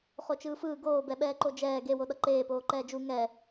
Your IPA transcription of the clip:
χ o t͡ʃ ɯː f ɯː ɡ oː b ɛ ɓ ɛː ǃ o d͡ʒ ɛː ɡ e w o ɗ ʌ ǃ eː p oː ǃ ɛː d͡ʒ u ŋ ɛ

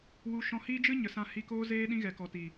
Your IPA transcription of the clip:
w u˧ ʃ ɔ̃˧ h iː˦ d͡ʒ ɨ˦ ɲ ə˨ s ã˧ h i˧ k oː˦ z eː˦ ɗ ĩ˦ ɣ ɛ˨ k ɔ˨ t i˨

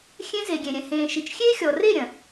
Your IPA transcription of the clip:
xʲ ẽ˦ z e˨ ɡʲ ẽ˨ ɾʲ ɛ̃˨ h ẽː˨ ʃ i˨ t͡ʃ xʲ e˦ xʲ ɔ˨ r e˦˨ ɾʲ ɐ̃˨

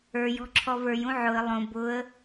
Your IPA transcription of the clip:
ə˞ j ɔ̤ ǁʰ ɔ v ə˞ j ũ ʕ ʊ ə̯ lˠ õ b ʊ ə̯

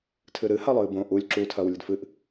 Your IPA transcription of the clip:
tʰ ɨ ɾ ɨ h a lˠ ɨː b õ ʔ u lʲ ǁ u tʰ ɐː w lʲ ɨ d f ɨ ʔ

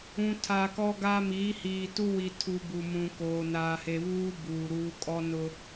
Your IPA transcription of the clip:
ũ˨ tʰ a˨ k ɔ˦ ɡ a˦ m iː˨˦ h iː˨ t u˦ w i˨ tʰ u˨ b u˨ m ũ˨ k oː˨ n aː˨ h e˨ β uː˦ b uː˨ ɾ uː˦ kʼ ɔ˦ n ʊ˦

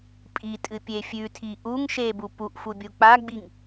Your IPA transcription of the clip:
pʼ i tʼ ɨ pʲ e fʲ ʉ tʰ i ʔ u ŋ ʃ e b u p u ʔ f u bʲ u k͡p a ɡ͡b i ŋ

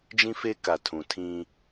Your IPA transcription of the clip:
d͡ʒ ĩ˦ f e˦ k a˨ tʰ ũ˨ tʰ ĩ˦

